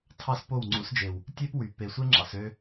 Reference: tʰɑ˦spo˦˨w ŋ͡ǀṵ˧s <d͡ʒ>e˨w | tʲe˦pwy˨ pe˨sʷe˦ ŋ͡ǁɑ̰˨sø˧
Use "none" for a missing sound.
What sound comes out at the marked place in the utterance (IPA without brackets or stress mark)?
d͡ʒ